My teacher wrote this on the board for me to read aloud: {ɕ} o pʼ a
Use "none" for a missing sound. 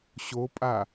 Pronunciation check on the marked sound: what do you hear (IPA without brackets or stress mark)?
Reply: ɕ